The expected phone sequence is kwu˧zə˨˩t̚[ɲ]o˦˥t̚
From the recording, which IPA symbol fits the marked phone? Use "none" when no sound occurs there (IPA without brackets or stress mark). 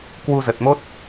m